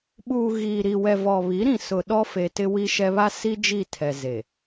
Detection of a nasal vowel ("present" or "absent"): present